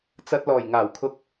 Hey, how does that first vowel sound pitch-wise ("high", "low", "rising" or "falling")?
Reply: low